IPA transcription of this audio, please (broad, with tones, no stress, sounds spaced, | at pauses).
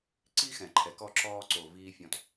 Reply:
ǀ i˦ x ɛ̃˨ ǃʰ ɛ˨ k ɔ˦˨ ǁ ɔː˧ ǀ o˨ v iː˧ fʲ ɔ̃˧ t